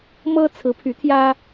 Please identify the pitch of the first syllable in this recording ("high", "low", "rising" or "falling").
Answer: high